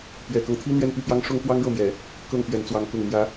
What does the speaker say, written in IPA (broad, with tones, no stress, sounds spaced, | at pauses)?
p ɥ ɛ˨˩ k ɤ˦ ŋ t̪ʰ i˥ n̪ ɥ ɛ˥˧ n p y˥˩ p j ɑ˥ ŋ ʂ ʊ˥ ŋ k w ɑ˥ ŋ ɻ ɤ˥˩ m j ɛ˨˩˦ | k ɤ˥˩ ŋ p ɥ ɛ˧˥ n t͡s w ɑ˧˥ ŋ k ʊ˨˩ ŋ m j ä˧˥